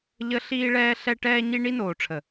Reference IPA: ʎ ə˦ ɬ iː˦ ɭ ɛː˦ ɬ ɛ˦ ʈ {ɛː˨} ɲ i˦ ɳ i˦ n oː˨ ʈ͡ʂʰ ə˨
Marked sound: incorrect: ɛː˦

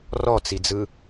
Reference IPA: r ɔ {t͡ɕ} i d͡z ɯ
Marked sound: incorrect: t͡s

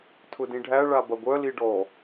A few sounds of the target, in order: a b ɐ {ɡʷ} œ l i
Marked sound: correct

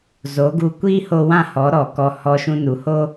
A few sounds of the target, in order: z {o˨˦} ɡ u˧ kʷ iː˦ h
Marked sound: correct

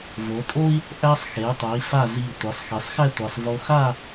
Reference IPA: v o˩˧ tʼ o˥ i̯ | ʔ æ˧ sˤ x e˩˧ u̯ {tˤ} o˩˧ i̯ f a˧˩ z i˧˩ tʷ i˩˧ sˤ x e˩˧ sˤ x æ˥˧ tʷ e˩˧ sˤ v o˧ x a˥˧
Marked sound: correct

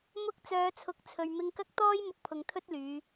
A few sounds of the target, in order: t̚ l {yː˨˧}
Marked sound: correct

